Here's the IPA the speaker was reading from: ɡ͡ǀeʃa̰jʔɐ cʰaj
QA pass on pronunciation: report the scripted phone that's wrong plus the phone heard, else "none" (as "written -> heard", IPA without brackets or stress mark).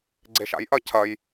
a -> ɐ